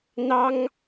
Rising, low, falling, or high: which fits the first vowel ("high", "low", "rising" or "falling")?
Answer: high